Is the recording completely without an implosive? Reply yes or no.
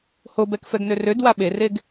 no